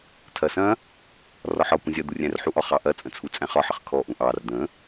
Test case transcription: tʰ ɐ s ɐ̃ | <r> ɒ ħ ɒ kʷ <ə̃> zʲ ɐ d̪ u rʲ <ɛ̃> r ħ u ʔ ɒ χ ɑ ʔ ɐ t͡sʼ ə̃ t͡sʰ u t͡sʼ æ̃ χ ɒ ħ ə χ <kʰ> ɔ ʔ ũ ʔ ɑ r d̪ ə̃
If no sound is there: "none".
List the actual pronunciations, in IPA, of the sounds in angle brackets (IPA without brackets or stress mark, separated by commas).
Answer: r, ə̃, æ̃, kʰ